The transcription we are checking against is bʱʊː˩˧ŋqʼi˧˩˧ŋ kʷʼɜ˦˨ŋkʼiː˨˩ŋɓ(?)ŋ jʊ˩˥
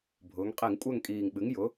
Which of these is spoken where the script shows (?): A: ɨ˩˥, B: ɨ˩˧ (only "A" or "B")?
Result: A